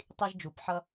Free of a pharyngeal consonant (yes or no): no